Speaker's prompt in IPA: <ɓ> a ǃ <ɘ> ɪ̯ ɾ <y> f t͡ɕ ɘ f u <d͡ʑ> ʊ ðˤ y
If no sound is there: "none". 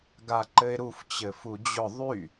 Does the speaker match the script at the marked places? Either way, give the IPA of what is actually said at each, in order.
ɡ, ɘ, u, d͡ʑ

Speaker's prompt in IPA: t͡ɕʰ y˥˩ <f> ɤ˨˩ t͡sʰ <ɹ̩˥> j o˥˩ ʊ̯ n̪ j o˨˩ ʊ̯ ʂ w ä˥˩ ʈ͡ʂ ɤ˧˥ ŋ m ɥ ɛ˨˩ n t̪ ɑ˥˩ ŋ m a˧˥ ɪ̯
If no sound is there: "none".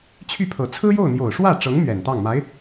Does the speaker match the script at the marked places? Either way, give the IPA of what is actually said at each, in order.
pʰ, ɹ̩˥

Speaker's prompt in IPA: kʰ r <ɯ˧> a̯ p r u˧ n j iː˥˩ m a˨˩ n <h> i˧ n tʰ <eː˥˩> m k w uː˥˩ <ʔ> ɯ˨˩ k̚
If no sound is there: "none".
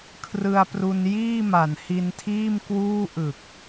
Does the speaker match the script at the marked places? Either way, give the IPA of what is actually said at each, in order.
ɯ˧, h, iː˥˩, ʔ

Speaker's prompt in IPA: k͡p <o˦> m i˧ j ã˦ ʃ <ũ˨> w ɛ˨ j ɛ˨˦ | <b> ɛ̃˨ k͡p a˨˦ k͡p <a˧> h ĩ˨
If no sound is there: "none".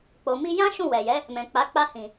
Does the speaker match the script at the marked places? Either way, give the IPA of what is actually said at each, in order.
o˨, ũ˦˨, m, a˧

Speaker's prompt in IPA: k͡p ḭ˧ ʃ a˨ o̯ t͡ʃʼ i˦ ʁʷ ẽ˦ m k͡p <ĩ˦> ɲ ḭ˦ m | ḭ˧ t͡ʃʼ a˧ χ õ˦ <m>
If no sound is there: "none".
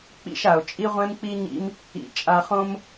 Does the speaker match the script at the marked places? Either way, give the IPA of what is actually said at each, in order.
i˦, m

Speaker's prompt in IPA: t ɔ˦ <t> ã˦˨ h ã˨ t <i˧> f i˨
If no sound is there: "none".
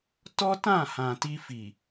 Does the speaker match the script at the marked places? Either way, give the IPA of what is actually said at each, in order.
t, i˧

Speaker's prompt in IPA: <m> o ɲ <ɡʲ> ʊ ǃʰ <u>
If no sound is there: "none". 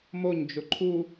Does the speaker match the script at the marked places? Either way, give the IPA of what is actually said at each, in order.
m, d͡ʒ, u

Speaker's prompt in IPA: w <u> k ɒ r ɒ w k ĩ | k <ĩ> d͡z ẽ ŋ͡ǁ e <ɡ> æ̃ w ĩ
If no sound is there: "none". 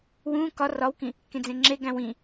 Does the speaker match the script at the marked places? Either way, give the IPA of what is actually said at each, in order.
ũ, ẽ, ɡ

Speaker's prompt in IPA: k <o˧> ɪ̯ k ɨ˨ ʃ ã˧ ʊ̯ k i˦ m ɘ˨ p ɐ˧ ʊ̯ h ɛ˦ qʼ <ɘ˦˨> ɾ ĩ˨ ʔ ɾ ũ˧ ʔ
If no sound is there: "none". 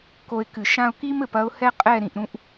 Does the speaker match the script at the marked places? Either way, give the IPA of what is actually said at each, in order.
o˧, ɛ˦˨

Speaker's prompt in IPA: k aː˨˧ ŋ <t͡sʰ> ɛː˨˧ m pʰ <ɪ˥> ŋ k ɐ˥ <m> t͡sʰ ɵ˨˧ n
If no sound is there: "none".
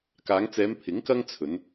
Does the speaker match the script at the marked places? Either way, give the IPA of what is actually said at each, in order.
t͡s, ɪ˨˥, ŋ

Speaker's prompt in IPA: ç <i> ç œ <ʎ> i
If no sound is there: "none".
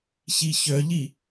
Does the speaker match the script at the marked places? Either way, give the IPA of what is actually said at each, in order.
i, ʎ

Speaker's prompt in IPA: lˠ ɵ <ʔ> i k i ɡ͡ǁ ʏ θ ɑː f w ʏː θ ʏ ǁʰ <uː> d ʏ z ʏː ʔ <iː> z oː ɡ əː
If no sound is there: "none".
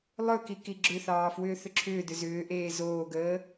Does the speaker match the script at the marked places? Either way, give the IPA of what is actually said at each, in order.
k, ʏː, eː

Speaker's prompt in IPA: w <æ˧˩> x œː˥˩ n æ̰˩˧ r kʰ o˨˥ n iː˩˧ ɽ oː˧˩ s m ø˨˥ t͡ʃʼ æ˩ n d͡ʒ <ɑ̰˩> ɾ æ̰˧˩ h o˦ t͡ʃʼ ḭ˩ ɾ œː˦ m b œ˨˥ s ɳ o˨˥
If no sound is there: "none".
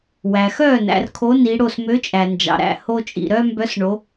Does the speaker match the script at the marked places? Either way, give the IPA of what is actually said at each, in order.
æ˩, ɑ̰˩

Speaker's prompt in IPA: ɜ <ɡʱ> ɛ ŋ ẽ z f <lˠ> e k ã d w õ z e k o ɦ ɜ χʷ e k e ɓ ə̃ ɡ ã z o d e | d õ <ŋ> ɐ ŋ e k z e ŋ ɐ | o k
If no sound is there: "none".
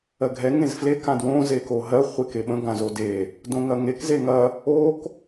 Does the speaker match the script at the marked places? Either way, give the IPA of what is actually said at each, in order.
ɡʱ, l, ŋ

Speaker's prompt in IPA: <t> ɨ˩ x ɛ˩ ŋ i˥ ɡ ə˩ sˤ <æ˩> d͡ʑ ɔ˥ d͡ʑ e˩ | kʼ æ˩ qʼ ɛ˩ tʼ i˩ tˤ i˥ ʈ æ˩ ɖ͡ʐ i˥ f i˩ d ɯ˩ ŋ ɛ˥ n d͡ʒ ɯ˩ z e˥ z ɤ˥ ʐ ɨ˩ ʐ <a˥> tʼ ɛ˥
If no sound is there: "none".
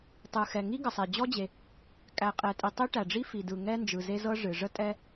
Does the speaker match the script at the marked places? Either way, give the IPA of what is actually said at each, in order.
tˤ, ɛ˩, ə˥

